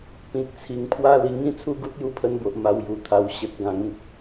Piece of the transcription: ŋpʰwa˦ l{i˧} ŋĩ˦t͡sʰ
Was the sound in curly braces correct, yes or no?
yes